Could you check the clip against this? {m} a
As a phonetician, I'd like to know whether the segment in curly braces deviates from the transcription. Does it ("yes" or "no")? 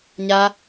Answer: yes